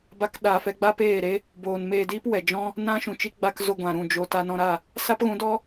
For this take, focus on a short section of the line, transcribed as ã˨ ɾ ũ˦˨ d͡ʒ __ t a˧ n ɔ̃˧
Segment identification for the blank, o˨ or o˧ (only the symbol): o˧